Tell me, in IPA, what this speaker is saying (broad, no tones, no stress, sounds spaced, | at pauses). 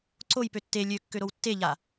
ǀ o j p ø tː e lʲ ø kː ø ɾ o w tː e ʎ a